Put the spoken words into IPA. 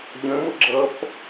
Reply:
ʎə̃mʊ ɡ͡ǁʌp

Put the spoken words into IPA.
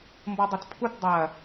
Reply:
mbɔdˤʊtpʰut dˤɐ

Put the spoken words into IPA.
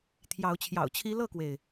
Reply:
t̪ʰjɑ˨˦ʊ̯t͡ɕʰjɑ̰˨˩ʊ̯t͡ɕʰi˦ lɤ˥˨kwe˩ɪ̯

